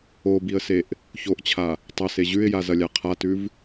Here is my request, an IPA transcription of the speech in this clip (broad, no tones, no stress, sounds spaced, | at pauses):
o b i ə̯ s e ʔ | ç o ʔ t͡ɕʰ a | tˤ ɐ s e ʑ ʉ ɪ̯ j a z ɐ lʲ a qʰ a t ʉ v